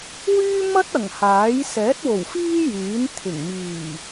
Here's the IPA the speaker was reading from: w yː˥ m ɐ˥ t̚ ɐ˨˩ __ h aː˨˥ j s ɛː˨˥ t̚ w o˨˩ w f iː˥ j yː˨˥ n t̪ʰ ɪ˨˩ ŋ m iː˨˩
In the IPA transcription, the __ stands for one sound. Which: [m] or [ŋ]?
ŋ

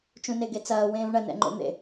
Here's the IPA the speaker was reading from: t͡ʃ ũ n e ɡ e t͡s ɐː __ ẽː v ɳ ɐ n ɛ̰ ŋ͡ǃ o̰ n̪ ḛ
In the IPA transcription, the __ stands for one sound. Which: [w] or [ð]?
w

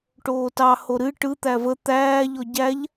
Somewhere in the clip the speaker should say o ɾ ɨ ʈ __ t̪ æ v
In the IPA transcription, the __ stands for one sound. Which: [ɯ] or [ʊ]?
ɯ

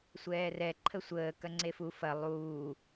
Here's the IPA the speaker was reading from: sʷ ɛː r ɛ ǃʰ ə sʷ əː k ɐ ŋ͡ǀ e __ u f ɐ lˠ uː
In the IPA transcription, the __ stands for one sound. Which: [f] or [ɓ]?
f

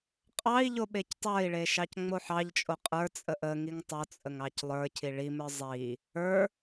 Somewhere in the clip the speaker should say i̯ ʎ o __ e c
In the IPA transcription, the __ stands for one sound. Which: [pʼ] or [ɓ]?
ɓ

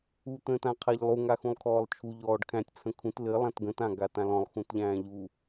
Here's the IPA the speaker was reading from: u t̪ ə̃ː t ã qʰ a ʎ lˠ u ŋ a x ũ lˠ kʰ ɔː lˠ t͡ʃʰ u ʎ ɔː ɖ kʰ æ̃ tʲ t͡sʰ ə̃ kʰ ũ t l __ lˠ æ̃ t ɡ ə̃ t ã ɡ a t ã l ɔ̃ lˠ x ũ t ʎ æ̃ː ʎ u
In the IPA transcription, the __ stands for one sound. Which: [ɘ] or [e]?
ɘ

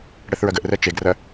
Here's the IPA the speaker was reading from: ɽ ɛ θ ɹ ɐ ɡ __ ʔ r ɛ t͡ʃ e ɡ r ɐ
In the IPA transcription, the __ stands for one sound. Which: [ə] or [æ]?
ə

